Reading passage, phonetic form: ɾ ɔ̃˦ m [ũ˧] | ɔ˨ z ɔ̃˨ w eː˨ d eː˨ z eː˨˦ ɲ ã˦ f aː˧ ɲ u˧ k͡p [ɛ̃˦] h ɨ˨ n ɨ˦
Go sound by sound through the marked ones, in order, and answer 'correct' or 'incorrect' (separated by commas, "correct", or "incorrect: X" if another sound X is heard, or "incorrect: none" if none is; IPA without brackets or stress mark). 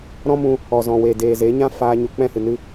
correct, correct